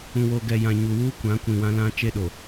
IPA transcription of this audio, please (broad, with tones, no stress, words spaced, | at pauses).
ũ˨wo˨ɡɛ˨ jã˨ɲu˨wuː˦ kʷã˨˦ kʷĩ˨wã˦lã˦ t͡ʃe˦ɗo˨